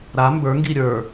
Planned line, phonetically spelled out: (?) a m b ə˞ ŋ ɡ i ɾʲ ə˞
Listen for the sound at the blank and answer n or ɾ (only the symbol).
ɾ